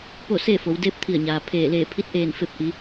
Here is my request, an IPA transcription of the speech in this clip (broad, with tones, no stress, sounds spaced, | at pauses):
p o˥˨ s eː˥˨ f o˩˧ w d eː˧˥ p̚ t̪ʰ i˧˩ ə̯ ɲ aː˩ pʰ eː˧˩ l eː˧˩ pʰ i˧˥ t̚ ʔ eː˧˩ n f e˧ p̚ ʔ i˩˧